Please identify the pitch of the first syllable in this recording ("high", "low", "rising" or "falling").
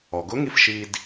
low